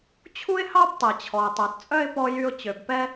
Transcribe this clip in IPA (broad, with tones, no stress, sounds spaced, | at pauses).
t͡ɕʰ u˥ ɪ̯ h ɑ˥ b tˤ ɛ˩ t͡ɕʰ ɔ˩ ʊ̯ tˤ œ˩ t t͡sʼ œ˧ ɪ̯ p ɔ˧ j y˧ ʊ̯ t͡ɕ ø˩ b p ɛ˥